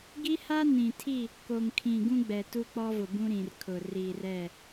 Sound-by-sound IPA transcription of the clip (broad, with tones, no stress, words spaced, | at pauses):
ɡi˦ha˦ nĩ˨tʰi˦˨ | ko˨ŋkʰĩ˨ ɡũ˦ɡ͡bɛ˨ tu˦k͡pɔ˦vʊ˨bũ˦ ɾĩ˨rkʰʊ˨ ri˨rɛ˦˨